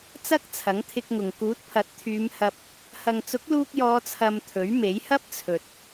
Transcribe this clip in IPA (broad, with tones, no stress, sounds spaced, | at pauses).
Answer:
t͡s ɐ˥ k̚ t͡sʰ ɐ˨˥ ŋ t̪ʰ ɪ˧ k̚ ŋ ʊ˨ ŋ k uː˨˥ t̚ pʰ ɐ˨˥ t̚ t̪ʰ yː˨˧ m h ɐ˨ p̚ | h ɐ˨ ŋ t͡s ʊ˨˥ k̚ l uː˧ k̚ j ɔː˨˧ t͡sʰ ɐ˧ m t̪ʰ ɵ˨˥ ɥ m e˨˥ j h ɐ˥ p̚ t͡sʰ ɵ˨ t̚